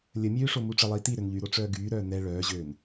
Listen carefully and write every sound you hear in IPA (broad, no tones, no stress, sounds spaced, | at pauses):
lʲ ə mʲ øː ʂ o m u ʈ͡ʂ ə lˠ iː t i ɾ ø n ʎ y ɾ o ʈ͡ʂ œː ɡ yː ɾ œː n ɛ ɭ œː ʑ øː n